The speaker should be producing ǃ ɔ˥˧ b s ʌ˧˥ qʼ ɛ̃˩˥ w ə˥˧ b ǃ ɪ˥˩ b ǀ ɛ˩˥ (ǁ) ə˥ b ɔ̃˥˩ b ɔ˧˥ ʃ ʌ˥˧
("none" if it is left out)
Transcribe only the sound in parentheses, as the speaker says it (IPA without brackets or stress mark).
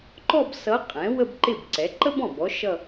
ǃ